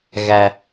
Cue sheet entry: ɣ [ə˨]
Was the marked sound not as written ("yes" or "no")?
yes